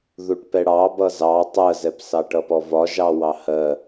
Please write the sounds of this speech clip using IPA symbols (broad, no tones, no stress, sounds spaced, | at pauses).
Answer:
ð u ʈ p ɛ ɽ ɑ b ʌ z ɑ tˤ ɜ z ɛ p s ɑ ʈ ʌ p ɔ v ɒ ʒ ɑ w ɑ h ɜ